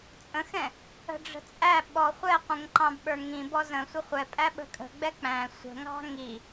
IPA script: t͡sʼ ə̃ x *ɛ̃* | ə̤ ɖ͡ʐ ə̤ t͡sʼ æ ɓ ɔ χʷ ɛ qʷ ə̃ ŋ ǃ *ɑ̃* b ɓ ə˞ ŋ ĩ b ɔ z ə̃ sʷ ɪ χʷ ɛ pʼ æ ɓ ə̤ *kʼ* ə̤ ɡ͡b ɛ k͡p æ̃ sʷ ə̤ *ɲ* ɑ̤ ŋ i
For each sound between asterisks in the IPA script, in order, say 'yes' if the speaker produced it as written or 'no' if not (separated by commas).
yes, yes, yes, no